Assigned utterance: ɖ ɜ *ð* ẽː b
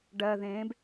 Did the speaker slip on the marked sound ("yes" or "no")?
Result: no